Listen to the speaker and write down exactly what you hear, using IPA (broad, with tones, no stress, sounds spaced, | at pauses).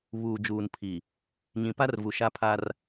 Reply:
β uː˨ d͡ʒ uː˨ n pʰ i˨ | ɲ ĩ˨ p a˦ r v u˨ ʃ a˦ pʰ a˦ r